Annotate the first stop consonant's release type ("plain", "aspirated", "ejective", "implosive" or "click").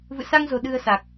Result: implosive